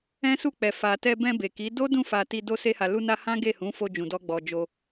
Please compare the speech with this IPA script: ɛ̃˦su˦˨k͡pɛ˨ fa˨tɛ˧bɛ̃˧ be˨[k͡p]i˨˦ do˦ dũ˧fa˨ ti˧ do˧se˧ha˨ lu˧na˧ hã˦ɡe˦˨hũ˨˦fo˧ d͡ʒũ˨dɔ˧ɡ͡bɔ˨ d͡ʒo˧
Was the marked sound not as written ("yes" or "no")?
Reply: yes